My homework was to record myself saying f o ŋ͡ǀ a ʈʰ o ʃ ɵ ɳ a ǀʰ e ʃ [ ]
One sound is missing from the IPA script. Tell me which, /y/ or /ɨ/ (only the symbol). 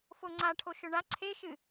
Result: ɨ